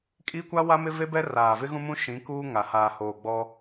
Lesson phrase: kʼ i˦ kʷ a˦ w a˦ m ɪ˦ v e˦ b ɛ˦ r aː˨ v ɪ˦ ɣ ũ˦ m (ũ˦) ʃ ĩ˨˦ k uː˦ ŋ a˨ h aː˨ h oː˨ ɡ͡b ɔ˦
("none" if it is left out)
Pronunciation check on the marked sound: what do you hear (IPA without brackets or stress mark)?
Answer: ũ˦